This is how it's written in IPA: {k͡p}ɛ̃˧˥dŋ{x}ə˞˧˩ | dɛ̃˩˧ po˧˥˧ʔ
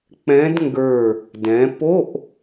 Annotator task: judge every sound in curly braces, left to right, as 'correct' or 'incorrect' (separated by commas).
correct, incorrect